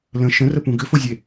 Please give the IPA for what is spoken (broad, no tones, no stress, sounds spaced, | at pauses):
l ə̃ ʃ ə̃ r ə p ũ ɡ ʏ f o zʲ e